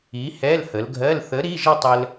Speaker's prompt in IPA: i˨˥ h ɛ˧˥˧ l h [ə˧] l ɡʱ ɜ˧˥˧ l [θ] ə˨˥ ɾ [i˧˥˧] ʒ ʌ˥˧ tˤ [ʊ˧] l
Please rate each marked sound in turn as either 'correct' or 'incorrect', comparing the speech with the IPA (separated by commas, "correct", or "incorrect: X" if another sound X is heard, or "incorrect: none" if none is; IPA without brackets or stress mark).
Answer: incorrect: ə˩˧, correct, correct, incorrect: ə˧